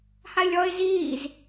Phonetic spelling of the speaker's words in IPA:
h a ɪ̯ lʲ ɔ ɪ̯ z iː z

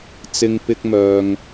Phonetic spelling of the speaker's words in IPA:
t͡s ɪ˧ ŋ p ɪ˧ k̚ m œː˨ ŋ

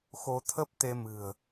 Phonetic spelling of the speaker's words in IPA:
x o˧ t̪ʰ ə˦˥ p̚ t̪ e˧ m ɨ̤˨˩ ə̯

